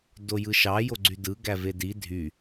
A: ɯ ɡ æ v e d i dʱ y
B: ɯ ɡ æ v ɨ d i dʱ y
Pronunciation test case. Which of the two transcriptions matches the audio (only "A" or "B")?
A